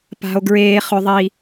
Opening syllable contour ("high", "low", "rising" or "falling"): high